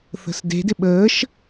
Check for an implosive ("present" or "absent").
present